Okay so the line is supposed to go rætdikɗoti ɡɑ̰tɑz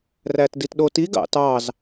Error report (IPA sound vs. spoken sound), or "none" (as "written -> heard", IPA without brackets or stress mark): k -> t